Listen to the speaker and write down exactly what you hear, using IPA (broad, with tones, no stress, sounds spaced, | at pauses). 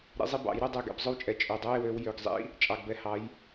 ɾ ḭ˨˦ zˤ i˥˧ b ɑ̰˨˩˦ j ɾ ɵ˥˧ dˤ ɛ˥˩ ɡ ɛ̰˨˩˦ b zˤ ɵ˥˩ w t͡ʃʼ ɛ˨ t͡ʃʼ ø˨ dˤ ø˧˥˧ e̯ w ø˨˦ w j ø˨ ɡ zˤ ḭ˧˥˧ | t͡ʃʼ ɑ˨ ɡ b ɛ˨˦ h ɑ˨˦ j